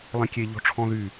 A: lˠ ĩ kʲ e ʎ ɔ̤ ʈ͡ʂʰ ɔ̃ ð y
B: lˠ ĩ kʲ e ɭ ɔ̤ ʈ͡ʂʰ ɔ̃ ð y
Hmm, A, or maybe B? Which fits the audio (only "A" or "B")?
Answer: A